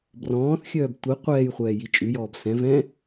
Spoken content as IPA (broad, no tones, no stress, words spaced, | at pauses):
brɔ̃ːθxʲœːb tʷi qʷɛːjχʷɛː jit͡ʃʼʉjɔːb sɛ̃ vɛ̃